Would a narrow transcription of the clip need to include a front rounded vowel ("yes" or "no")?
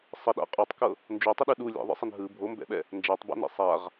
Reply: no